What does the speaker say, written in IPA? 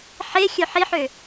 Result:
ħe xʲœħiħø

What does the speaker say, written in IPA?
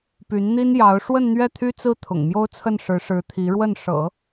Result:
py˧˥nn̪i˥njɑ˧˥ʊ̯ ʂwə˥˧nn̪ɥɛ˥˩t̪ʰy˥t͡sɹ̩˥ t̪ʰʊ̰˨˩ŋmjo˥ʊ̯t͡sʰə˥˩nʂɻ̩˧˥ ʂɻ̩˧˥t̪ʰi˧˥ɻwə˥˩n ʂɤ̰˨˩˦

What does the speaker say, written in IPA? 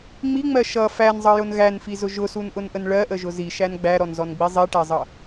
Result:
ŋ͡miŋ͡mɜ ʃʌ fænzˤʌjʊn ɣænfizʊ ʒʊsunʔʊnʔən ɭɜʔəʒʊ ziʃæn ɡ͡bæɾɔnzɔnɡ͡bi zˤiʈæzˤʌ

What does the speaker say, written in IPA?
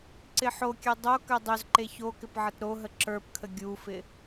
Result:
ǀɪħokʲø dˤokø dˤøzǃe çokɪp ʕətɾoɦə ǁə˞pkʰə ɡʲufɪ

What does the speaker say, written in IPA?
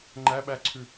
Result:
ŋ͡ǃæɓæǀʰʉ

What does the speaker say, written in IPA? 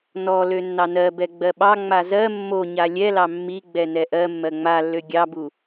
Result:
nɔlø nːɑnɜ bɛɡ͡bɜɓɑ ŋ͡mazɜ mːoɲa lʲɛlɑ mːi ɡ͡bɛnɛʔɜ mːɜŋ͡malːø ɡʲɑbu

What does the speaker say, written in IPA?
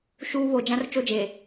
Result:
ʃuː˦ βoː˨d͡ʒã˦rt͡ʃo˦d͡ʒeː˨

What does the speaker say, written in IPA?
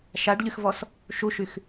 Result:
ʃaɖʎyxvɔs | ʃuʃyx

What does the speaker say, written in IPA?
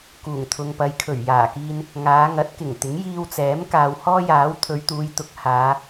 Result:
kuː˨˩ŋt̪ʰʊ˨ŋpɐ˨˧j kʰɵ˨˩ɥjaː˨˩kiː˧n | ŋaː˨˧ŋɐ˨˥t̚kɪ˨˩ŋt̪ɪ˨˥ŋ jiː˧wt͡sɛː˨˥m kaː˨whɔː˥jaː˨˥w t̪ʰɵ˨˧ɥ t̪uː˨˧jt̪ʊ˨˥k̚ haː˨˧

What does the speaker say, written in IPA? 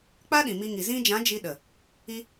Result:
k͡pa˦ɗĩ˨ mi˧ŋi˨ zĩ˧d͡ʒã˨˦ d͡ʒi˧ɗə˨ | i˧

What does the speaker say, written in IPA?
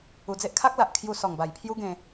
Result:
u˧d͡ze˦ʔ kʰa˦k̚la˨ʔ kʰju˧sɔ˨˩ŋba˨˩jpʰju˦ ɡẽ˧

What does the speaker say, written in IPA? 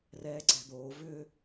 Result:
rɛːǀɛ̤d̪oː vʏ

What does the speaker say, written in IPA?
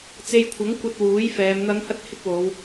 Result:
t͡se˧jkʷʰɐ˨˥ŋkʷɐ˧t̚ wuː˨˥jfɛː˨˧m n̪ɐ˨˧ŋhɐ˧t̚ hɪ˥k̚wo˨˧w

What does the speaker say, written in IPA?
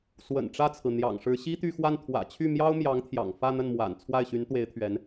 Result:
swə̰˨˩n ʈ͡ʂä˥˩t͡sʰɹ̩˩n̪jɑ̰˨˩ŋʂɻ̩˧˥ ɕi˥t̪y˥˧xwa˥˩n t̪ʰwä̰˨˩t͡ɕʰy˥˩mjɑ˥ʊ̯ mjɑ˧˥ŋt̪ʰjɑ̰˨˩ŋ fä˥˧n̪ə˥˩nmwa̰˨˩n t͡sʰwa˥˩ɪ̯ɕy˧˥nt̪we˧˥ɪ̯t̪ʰɥɛ˧˥n

